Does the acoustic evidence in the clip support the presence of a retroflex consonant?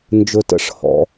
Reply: yes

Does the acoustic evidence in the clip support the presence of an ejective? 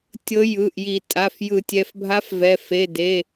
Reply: yes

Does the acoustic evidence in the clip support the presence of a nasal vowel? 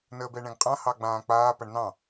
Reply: yes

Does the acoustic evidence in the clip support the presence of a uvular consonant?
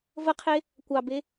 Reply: yes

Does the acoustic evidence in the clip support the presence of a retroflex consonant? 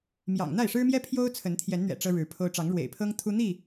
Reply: yes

